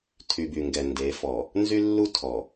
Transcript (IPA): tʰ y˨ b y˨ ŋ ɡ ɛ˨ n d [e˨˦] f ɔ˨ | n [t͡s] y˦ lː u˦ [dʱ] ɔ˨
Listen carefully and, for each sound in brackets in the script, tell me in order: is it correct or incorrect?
correct, incorrect: z, incorrect: tʰ

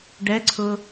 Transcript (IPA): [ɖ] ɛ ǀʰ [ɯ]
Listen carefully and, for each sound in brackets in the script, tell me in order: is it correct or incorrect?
correct, incorrect: ʊ

